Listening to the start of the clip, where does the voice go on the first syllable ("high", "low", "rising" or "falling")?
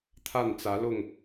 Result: falling